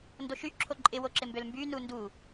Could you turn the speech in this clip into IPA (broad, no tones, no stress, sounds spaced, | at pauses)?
n d o ʃ y ǁʰ o ǃʼ ɪ w o ǁ ɪ m b ø l m b y n u n d u